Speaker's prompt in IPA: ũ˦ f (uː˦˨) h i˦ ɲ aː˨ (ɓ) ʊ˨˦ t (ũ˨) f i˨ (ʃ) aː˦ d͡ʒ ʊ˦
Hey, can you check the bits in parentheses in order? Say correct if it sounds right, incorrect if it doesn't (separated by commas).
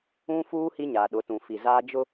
incorrect, incorrect, correct, incorrect